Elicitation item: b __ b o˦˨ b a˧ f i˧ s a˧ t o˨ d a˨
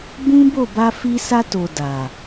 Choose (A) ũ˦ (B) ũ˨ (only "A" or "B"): A